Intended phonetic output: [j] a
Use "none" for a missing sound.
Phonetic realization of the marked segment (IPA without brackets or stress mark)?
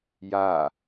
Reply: j